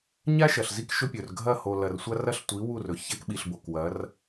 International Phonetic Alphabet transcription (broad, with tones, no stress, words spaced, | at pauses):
ɲa˦ ʃɐ˨ɬzi˦k ʃɵ˦ pʲɵ˨rɡʱɐ˦˨ ho˨lɐ˨rsʷa˦ rɐ˦ɬtʷi˨˦wu˦˨ rɵ˨ ça˦kɓi˨ɬ bo˨kwɐ˨˦r